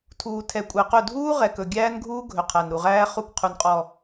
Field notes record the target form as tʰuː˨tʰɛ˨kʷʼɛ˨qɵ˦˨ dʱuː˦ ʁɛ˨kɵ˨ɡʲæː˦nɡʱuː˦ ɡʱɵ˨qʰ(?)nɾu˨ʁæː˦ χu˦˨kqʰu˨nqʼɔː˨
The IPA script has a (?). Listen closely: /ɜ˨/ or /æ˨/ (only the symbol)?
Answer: æ˨